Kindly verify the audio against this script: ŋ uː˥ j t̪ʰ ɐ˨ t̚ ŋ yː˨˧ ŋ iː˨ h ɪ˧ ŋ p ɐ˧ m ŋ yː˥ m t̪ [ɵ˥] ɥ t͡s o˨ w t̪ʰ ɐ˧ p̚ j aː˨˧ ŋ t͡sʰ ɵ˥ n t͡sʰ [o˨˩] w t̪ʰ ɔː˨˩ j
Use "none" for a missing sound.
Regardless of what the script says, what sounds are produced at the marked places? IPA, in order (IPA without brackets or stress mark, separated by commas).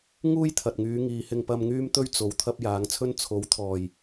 ɵ˥, o˨˥